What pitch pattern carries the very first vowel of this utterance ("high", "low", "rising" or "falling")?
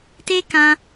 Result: high